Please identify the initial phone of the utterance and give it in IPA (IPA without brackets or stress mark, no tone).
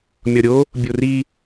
mʲ